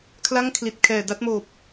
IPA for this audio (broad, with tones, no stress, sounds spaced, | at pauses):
kʰ l a˥˩ ŋ kʰ l i˨˩ t̚ kʰ ɛː˨˩ d a˥˩ t̚ m oː˨˩ p̚